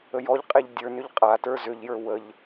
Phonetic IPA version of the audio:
ə j ɔ ʎ qʼ e ʎ dʲ ə˞ n ʏ ʎ qʼ a t ə˞ z ʏ ʎ j ə˞ w ə ʎ

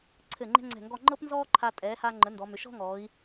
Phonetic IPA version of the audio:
ǀʰ ɘ˧˩ ŋ͡ǃ ɛ̤˥ ŋ͡ǀ ɛ̤˧˩ ŋ ɡ ɔ˥˧ ŋ͡ǃ ɤ˥ p n z ɔː˥ ǃʰ a˧ tʼ ɛː˩˧ h a˧ ŋ͡ǃ ə˩˧ n d ɔ˩˧ m ʏ˩˧ ʃ ɔ̤˥ ŋ ɔː˩˧ i̯

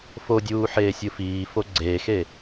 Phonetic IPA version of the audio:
f o dʲ uː ħ eː sʲ ɯ f iː f o ɡ͡ǀ eː x e

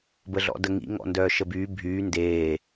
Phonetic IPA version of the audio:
b ə ɮ ɔ̰ d ə ŋ ḭ ŋ ɔ̰ n d œː ʃ ə b yː bʱ yː n d eː

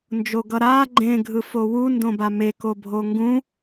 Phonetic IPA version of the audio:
n d͡ʒ o ɡ ʌ ɾ a ɡ͡ǃ ẽ ɡʱ ɯ f o w u n d õ b a m e k o bʱ o ŋ ɡ ũ

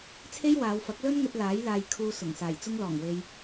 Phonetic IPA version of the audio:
t͡sʰ e˥ j w aː˨˧ w f ɐ˨˥ k̚ l ɵ˥ n ŋ ɵ˧ t̚ l aː˨˥ j l aː˧ j kʰ uː˧ s ʊ˨˩ ŋ s aː˨˩ j t͡s ʊ˧ ŋ l ɔː˨˩ ŋ w e˧ j

